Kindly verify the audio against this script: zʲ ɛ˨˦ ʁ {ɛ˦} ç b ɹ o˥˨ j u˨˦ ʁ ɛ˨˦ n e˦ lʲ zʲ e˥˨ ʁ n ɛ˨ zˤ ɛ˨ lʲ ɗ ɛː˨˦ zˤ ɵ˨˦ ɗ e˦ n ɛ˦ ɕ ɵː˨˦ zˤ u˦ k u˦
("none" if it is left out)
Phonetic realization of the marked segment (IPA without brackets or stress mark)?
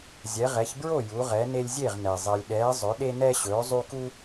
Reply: ɛ˨˦